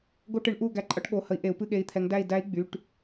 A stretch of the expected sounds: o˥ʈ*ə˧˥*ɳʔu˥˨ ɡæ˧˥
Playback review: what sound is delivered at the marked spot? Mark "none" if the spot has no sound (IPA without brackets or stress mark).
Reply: ɨ˧˥